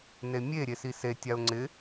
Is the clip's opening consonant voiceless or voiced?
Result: voiced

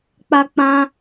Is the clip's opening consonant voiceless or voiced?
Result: voiceless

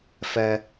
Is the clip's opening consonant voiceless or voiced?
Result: voiceless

